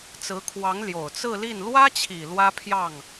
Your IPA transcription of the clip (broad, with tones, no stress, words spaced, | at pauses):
t͡sɹ̩˧˥kʰwɑ˧˥ŋ ljo˨˩ʊ̯t͡sɹ̩˥˧li˥˩n lwä˥t͡ɕʰi˨˩ lwä˥pʰjɑ˥˩ŋ